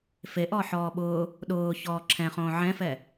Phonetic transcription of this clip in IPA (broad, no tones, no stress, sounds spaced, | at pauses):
f e ʔ ɔ ħ ɔː ɓ ʊː | ɗ ʊː ç ɔː ǁʰ ɛ̃ χ õː ʕ ɛ̃ f ɛ